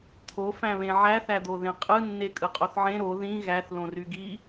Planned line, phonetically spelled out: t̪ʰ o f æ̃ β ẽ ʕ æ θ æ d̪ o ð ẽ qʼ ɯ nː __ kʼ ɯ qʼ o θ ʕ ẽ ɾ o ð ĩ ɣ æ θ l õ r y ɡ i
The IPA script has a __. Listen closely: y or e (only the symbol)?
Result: e